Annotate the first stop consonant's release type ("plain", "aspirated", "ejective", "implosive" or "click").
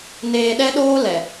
implosive